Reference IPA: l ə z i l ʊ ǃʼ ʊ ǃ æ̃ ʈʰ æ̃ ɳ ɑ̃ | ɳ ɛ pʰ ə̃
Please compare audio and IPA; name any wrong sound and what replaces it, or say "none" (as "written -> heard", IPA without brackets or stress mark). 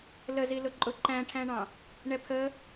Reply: ə̃ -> ə